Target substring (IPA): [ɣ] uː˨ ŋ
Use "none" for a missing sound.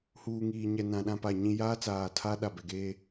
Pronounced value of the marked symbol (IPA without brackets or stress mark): h